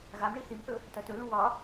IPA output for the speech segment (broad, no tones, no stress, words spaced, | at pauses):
ɣamɳi θimθɵ | tɐtɵlũ wɒ